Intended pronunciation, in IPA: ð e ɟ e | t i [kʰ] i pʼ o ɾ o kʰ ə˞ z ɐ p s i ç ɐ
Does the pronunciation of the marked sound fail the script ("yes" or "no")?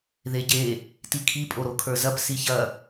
no